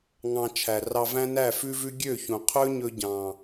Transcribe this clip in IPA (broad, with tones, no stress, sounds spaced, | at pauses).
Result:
ŋ ɑ̃˧ t͡ʃʰ æ˨ r ɑ˧ v æ̃˦ n æ˦˨ f ʉ˦ v ʉ˦ ɡʲ ø˦˨ ç ũ˨ qʰ ɵ˦ ɲ ɵ˧ ɟ ɑ̃˨